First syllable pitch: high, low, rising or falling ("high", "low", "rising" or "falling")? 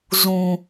low